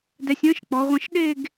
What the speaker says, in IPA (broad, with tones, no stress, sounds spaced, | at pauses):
d ɛ˧ sʲ ə̃ː˥ ʃ k͡p ɔ˩˧ ʁʷ ə̃˧ ʃ ɗ e˥˧ ɡ